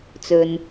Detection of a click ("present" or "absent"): absent